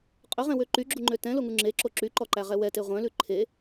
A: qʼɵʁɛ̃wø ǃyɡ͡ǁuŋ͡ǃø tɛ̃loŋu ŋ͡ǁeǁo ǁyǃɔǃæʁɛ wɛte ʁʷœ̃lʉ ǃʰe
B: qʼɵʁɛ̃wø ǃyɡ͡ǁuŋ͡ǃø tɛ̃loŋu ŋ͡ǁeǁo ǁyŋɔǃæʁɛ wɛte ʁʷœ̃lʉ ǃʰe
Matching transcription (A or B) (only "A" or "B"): A